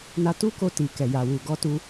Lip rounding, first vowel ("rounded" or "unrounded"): unrounded